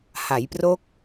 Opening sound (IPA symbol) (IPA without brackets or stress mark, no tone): h